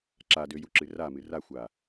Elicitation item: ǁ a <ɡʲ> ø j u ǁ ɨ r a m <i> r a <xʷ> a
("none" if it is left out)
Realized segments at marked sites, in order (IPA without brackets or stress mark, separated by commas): d, ɨ, xʷ